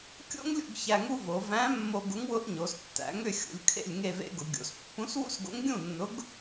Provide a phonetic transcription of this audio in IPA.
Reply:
kʲo̰˥ŋlʲṵ˥˧ɡ çæ˧ŋu˥vo˩˧ væ̃˧˥mːo˧ ɡʊ˧˥ŋwʊ˧˥ʔ ɲo˩˧stːæ̰˩˧ŋʏ˥˧ xʲṵ˩˧lʲkʰḛ˥˧lʲŋe˥˧vḛ˥ ɡʊ˩˧ɡʲo̰˩˧s pːũ˧˥swṵ˥sɡo̰˧˥ŋ ɡʲũ˥˧nːʊ˧˥ɡ

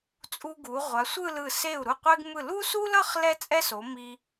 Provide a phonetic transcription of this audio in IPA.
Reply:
t͡sʼu˧ɡu˩˧ ʁʷa˩˧sʷɯ˥˧lɯ˧˩ se˧˩u̯ɾu˧˩qʷe˧ɡmɯ˧˩ lu˥su˥lʌ˥˧χ lɛ˥t͡sʼɛ˥so˩˧ mi˧

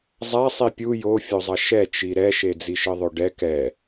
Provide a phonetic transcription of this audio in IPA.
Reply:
zˤa sˤipʲu jofʲozˤʌ ʃɛt͡ʃi ɾɛʃe d͡ziʃɯðˤoɖɛ kɛ

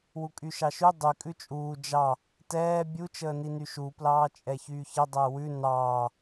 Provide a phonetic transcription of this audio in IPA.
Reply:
wukʼyʃɑʃy dˤy kʼʉt͡ʃʼuː d͡ʒɑ | tɛː bʲut͡ʃəːni nyʃu plɑːt͡ʃʼɛçyːçə dˤəːwʉ nɑː

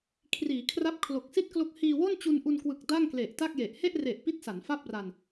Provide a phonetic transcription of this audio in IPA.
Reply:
kʰriː˩˦kʰra˦˥p̚ kʰlo˨˩k̚si˥˩t̚klo˦˥k̚ hiː˧wo˥˩n t͡ɕu˧nʔu˧nkwɯ˨˩k̚ da˥˩ŋkle˨˩ʔ ta˥˩k̚je˨˩ʔ he˥˩ʔre˨˩ʔ pi˥˩t̚sa˩˦nfa˥˩p̚ra˧n

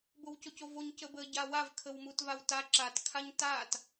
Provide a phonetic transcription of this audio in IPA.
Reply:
bowcocovoɲ cəbə ɟawav kʰəwmutvawta ǁat kʰaɲtat

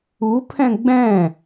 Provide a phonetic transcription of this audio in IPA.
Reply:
upʰɛ̃ ɡ͡bɛ̃

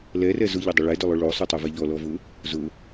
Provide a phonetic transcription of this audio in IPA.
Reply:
lɛrɛ zʊʎʊdˤʊ ɭɛdʊlˠʊ ɭosˤotˤɛvɛ ʎɔlɔvʊ | zʊ

